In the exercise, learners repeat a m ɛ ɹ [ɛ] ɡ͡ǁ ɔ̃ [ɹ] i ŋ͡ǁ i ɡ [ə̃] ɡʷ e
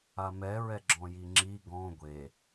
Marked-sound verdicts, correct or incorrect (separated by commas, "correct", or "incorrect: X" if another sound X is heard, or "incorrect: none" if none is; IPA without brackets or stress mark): correct, incorrect: j, incorrect: ɔ̃